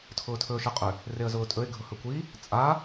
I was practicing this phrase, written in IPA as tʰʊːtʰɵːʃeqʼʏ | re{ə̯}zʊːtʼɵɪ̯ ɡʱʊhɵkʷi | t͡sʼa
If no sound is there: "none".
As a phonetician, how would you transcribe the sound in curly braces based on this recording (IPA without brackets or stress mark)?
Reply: ə̯